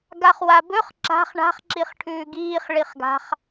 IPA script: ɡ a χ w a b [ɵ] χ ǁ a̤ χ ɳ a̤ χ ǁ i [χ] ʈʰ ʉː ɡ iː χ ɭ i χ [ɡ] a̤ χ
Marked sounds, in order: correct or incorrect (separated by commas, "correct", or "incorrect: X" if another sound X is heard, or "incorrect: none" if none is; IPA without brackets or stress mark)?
correct, correct, correct